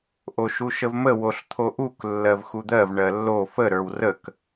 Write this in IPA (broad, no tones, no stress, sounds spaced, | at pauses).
ʔ o ʃ u ʃ ə v m ə w o ɬ t̪ʰ o ʔ u k lː ɜ v x u d̪ ɜ v ɳ ɜ lː o f ə ɾ ə˞ w r ə k